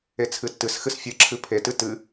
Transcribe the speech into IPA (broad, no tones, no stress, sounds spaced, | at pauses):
e t͡sʰ ɨ tː ɨ s x ɨ s fʲ ɨ ǁʰ ɨ pʰ e t ɨ t ɨ